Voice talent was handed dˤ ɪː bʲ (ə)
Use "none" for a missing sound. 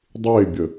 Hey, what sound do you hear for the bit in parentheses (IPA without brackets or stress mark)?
ə